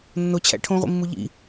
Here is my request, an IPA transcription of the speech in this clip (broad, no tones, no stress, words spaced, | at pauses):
nːot͡ɕʰæ̰ ʈʰõʁʷḭmːu ʎḭ